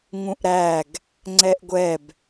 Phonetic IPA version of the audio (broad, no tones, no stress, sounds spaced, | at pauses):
ŋ ũ ʔ ɾ æ ɡ | ŋ͡ǀ ɛ ʔ ɡʷ ɛ b